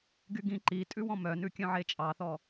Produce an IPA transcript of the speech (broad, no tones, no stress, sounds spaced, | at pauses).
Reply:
ɡ y ɡ ĩ ǃ i tʼ ʉ w ɔ̃ m œ n ʉ kʲ œ̃ ʕ e t͡ʃʼ ɑ θ ɔ